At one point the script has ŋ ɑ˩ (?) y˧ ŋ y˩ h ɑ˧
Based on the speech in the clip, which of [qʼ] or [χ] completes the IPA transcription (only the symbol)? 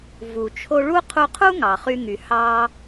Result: χ